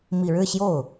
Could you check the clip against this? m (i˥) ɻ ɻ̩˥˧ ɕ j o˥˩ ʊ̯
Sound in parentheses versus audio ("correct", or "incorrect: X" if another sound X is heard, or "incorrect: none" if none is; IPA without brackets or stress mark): incorrect: i˨˩